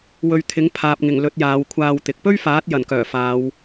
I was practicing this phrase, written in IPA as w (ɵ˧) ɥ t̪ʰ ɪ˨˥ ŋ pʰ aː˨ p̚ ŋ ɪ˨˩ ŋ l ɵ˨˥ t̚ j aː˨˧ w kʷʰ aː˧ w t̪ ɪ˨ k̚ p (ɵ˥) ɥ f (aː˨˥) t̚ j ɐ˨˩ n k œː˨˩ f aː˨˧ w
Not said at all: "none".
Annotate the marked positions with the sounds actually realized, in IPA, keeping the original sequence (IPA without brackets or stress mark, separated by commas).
ɵ˧, ɵ˥, aː˨˥